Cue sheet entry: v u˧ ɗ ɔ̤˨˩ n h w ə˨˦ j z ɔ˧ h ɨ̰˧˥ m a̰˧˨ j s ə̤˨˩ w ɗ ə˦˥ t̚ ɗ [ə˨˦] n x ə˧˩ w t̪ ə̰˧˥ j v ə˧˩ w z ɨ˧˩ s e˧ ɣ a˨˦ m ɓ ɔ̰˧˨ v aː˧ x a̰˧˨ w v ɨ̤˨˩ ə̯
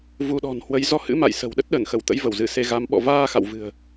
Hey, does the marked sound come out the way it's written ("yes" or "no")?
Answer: no